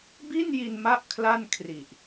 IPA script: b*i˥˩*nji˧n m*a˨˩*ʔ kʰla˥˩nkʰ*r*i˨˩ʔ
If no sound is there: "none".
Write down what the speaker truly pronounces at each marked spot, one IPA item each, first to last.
i˥˩, a˥˩, r

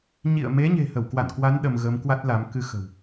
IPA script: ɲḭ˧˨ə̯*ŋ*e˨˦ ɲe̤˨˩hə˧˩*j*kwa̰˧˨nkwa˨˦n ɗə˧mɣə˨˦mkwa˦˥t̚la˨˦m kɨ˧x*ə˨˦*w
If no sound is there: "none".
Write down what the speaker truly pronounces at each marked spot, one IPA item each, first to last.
m, w, ə̤˨˩

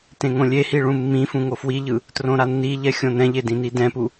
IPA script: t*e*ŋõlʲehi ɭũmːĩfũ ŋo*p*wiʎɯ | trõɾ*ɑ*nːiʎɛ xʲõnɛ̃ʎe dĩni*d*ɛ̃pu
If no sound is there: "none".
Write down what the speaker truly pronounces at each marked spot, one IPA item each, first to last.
ẽ, f, a, d

